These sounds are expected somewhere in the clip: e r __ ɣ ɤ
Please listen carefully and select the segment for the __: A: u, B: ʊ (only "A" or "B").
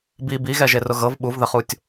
B